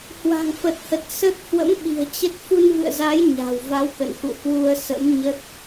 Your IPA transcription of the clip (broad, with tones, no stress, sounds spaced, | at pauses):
h w a̤˨˩ ŋ f ə˨˩ t̚ h ə˨˩ t̚ s ə˦˥ t̚ h w ə̰˧˥ m ɓ i̤˨˩ ə̯ t͡ɕ ə˦˥ t̚ f u˧ n v ɨ̰˧˨ ə̯ z a˨˦ j ɲ a̤˨˩ w v a˨˦ w k ə̰˧˨ n x ṵ˧˨ h w u˧ ə̯ s ə̰˧˥ m ɲ ə˦˥ t̚